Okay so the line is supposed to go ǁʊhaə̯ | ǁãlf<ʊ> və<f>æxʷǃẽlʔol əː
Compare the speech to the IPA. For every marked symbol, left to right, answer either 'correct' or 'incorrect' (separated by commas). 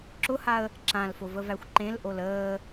correct, incorrect